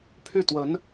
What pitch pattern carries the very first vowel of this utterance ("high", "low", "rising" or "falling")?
falling